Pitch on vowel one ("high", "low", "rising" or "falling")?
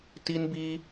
high